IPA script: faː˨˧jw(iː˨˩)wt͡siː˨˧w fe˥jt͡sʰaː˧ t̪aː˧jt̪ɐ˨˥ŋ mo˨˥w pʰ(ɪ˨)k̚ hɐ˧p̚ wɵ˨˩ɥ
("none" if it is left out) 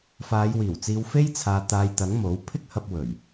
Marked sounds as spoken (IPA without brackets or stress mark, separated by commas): iː˨˩, ɪ˥